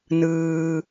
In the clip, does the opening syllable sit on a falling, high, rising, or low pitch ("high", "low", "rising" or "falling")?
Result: low